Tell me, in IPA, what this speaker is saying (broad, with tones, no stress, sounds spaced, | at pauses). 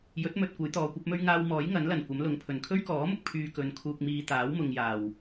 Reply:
j ɵ˨˥ t̚ m ɵ˨ t̚ kʷ ɐ˨˥ j t̪ ɔː˨˧ kʷ ɐ˨˥ p̚ m ɵ˥ ɥ ŋ aː˧ w m ɔː˨˥ j ŋ ɐ˨˥ n l ɐ˨˩ n kʷ ɐ˨˥ m l ʊ˨˧ ŋ pʰ ɵ˨˩ n kʰ ɵ˥ ɥ k ɔː˨˥ m ʊ˨ k̚ pʰ yː˧ k ɵ˨ n kʰ uː˨ k̚ m iː˨ t̪ aː˨˥ w m ʊ˨ ŋ j aː˨˩ w